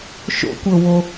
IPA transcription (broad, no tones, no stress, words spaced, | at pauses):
ʃo̰kʷɤwo